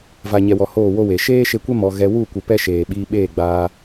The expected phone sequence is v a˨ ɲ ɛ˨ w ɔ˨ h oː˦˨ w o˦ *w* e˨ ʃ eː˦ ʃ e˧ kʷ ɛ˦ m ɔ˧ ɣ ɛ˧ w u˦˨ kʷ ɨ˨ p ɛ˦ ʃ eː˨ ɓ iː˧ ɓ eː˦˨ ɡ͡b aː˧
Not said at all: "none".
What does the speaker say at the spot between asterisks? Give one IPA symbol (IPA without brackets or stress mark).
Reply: w